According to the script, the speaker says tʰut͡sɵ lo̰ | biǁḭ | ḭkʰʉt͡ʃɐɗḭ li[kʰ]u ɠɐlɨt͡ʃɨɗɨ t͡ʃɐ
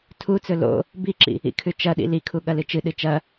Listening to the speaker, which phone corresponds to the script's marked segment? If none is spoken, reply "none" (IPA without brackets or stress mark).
kʰ